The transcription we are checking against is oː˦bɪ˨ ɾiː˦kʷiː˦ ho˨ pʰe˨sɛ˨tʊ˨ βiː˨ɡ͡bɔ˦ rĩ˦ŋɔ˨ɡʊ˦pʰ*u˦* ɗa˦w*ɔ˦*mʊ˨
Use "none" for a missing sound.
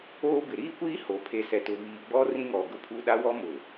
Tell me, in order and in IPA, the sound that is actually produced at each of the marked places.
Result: u˦, ɔ˦

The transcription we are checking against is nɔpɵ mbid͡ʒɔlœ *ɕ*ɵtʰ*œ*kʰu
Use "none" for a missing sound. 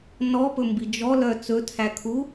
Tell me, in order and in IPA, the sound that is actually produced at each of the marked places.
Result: t͡s, æ

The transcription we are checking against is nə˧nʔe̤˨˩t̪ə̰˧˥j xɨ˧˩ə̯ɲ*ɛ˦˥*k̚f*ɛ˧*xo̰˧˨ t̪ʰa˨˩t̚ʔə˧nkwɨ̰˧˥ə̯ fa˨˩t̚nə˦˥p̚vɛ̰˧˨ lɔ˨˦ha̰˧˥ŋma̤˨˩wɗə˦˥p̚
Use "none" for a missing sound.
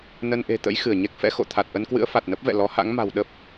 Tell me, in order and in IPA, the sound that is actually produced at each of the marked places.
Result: ɛ˦˥, ɛ̰˧˥

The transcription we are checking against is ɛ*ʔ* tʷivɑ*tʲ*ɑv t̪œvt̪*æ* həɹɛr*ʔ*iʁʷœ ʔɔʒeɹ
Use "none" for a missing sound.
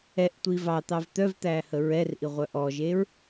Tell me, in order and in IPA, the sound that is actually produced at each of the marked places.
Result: ʔ, t̪, æ, ʔ

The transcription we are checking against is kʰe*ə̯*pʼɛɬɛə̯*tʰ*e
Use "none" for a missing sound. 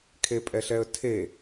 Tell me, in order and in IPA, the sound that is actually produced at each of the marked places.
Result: none, tʰ

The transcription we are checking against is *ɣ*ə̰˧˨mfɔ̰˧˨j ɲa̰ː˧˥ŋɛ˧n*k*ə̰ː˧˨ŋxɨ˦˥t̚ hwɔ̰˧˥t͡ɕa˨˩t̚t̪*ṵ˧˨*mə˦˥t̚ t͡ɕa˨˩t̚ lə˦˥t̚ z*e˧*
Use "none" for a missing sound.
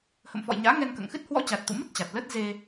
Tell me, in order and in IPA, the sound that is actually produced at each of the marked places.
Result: h, k, ṵ˧˨, e˧

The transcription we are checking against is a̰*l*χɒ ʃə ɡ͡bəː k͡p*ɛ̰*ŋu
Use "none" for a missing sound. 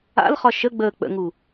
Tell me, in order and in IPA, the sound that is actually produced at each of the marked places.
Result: l, ə̰

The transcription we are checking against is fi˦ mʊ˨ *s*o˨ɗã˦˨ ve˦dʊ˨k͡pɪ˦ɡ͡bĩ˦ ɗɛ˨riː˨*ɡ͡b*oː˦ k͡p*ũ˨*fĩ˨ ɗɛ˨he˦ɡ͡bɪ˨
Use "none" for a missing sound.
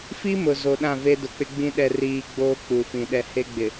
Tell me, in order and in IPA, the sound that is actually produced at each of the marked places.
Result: z, ɡ͡b, u˨

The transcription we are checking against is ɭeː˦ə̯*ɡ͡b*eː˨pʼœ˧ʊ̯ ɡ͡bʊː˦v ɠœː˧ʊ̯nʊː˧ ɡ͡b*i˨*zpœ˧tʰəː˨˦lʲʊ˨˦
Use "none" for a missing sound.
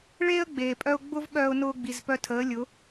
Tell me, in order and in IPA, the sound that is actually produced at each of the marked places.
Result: ɡ͡b, i˨

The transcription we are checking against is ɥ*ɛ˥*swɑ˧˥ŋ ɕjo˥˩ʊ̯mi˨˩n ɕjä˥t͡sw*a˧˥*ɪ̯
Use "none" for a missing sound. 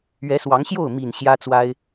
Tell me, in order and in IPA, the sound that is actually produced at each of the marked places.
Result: ɛ˧˥, a˥

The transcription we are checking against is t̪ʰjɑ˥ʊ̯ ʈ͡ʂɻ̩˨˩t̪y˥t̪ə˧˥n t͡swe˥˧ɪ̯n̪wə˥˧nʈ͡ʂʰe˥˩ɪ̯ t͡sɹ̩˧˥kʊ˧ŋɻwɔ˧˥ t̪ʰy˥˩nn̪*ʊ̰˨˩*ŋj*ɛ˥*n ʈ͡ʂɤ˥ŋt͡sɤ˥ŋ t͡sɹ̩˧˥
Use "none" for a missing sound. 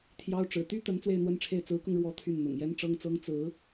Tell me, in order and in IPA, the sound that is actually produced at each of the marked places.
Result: ʊ̰˨˩, ɛ˥

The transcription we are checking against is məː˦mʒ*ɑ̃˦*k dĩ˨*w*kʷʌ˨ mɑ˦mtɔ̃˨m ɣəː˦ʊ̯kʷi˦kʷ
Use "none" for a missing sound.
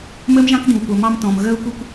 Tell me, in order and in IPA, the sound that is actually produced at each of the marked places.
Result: ɑ̃˦, w

